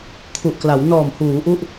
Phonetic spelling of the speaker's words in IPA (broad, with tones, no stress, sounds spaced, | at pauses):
kʰ u˨˩ ʔ k l a˩˦ w n ɔː˨˩ m h uː˩˦ ʔ u˥˩ ʔ